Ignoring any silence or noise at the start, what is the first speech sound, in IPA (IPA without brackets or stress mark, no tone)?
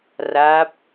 r